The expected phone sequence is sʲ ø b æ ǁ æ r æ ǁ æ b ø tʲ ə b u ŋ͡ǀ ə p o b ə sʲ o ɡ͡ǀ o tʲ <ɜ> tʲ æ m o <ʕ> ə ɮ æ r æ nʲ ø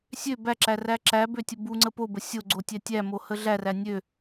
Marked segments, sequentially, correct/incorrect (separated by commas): incorrect, incorrect